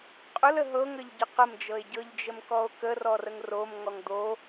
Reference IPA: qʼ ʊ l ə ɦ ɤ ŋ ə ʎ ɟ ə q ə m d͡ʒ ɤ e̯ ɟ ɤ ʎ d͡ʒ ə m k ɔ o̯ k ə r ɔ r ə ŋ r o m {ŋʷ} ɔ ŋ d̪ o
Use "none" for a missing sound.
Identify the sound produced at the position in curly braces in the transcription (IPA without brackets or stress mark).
ŋ